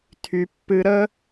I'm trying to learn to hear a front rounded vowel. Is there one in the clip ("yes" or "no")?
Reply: yes